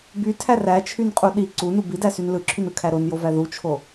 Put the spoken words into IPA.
bytʰæ ræt͡ʃʰynqʼu ɗi ǀunu bidæsyn lɯǁʰynɯkʰæ ɾonjovæ ðut͡ʃʰo

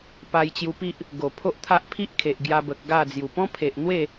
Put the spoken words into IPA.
pa˧jt͡ɕju˧pi˦ʔ | ɡo˨˩pʰo˦ʔt̪ʰa˦ʔ pʰi˦ʔkʰe˨ʔ ɡja˧bə˨k̚ ɡa˥˧d͡zju˨˩ pɔ̃˦pʰe˨ʔn̪we˥˧

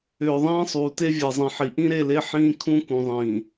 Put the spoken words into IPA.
ʏː˨ ðˤĩː˦sˤuː˨te˦ vʲe˨zˤĩ˨ħi˨ ʔĩ˦ɾe˦˨le˦ ħĩː˦ kʰũ˦kũ˨ðˤĩː˨

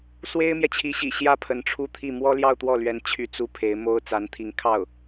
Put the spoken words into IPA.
swe˥ɪ̯mjɛ˨t͡ɕʰi˧˥ɕḭ˨˩ ɕjä˥˩ pʰə˧˥nʈ͡ʂʰu˥˧t̪ʰi˥˩ mwɔ˥ljɑ˥˧ʊ̯t̪wɔ˥˩lɥɛ˧˥n t͡ɕʰy˥˩t͡su˥ pʰe˧˥ɪ̯ mo˥ʊ̯ t͡sa˧˥nt̪ʰi˧˥ŋkʰɑ˥˩ʊ̯

